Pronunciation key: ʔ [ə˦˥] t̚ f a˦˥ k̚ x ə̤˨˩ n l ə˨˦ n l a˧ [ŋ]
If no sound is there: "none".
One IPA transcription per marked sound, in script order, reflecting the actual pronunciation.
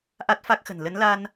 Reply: a˦˥, n

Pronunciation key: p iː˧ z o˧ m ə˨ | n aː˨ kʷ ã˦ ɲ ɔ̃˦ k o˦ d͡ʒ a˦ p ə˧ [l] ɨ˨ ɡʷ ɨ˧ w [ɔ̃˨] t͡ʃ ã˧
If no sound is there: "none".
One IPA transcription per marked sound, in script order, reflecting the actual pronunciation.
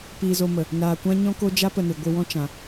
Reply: n, ɔ̃˦

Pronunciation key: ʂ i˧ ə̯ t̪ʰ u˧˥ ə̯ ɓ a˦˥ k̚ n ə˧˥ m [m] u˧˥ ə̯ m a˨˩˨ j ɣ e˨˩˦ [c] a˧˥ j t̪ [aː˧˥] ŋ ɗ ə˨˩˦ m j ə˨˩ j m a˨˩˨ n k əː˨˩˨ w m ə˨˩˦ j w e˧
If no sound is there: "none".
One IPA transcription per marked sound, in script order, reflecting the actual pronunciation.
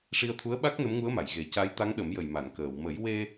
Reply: ŋ, c, a˧˥

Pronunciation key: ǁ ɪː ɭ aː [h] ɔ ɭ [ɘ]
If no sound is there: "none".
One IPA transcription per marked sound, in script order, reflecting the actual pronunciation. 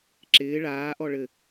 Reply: ʔ, ɘ

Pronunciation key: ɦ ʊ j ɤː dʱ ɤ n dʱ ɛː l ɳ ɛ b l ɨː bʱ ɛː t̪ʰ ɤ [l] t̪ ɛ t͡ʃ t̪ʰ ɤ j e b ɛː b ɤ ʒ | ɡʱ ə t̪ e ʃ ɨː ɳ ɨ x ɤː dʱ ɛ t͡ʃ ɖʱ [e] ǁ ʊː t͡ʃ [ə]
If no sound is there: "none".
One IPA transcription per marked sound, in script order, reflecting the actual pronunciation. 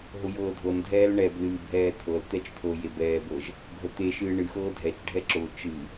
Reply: l, ɛ, ɨ

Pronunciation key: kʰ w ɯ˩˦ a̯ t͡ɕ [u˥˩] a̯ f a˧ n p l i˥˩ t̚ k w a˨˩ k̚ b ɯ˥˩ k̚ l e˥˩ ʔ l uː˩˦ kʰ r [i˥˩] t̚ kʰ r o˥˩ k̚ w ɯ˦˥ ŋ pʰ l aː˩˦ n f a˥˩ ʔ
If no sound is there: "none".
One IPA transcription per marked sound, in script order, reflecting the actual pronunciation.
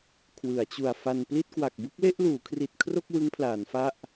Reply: u˨˩, i˨˩

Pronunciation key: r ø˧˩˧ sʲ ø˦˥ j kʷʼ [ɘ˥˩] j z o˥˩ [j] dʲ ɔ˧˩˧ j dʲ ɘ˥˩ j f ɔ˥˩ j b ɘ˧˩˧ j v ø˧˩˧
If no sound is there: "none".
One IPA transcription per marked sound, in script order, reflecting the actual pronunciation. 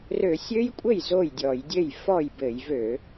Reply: ɘ˥˩, j

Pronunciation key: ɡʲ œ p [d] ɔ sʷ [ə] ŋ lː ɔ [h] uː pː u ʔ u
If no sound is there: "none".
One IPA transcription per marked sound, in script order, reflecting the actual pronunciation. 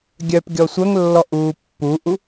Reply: ɡʲ, œ, ʔ

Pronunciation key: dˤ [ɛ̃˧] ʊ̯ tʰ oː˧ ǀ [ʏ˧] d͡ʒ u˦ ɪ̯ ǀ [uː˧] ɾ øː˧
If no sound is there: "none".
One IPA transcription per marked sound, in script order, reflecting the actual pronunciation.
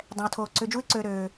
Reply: ɛ̃˧, ʏ˧, øː˧

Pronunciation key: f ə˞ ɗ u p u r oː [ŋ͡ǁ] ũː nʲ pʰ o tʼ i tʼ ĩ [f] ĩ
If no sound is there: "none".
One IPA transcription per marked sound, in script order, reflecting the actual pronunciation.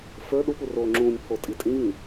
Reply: ŋ͡ǁ, v

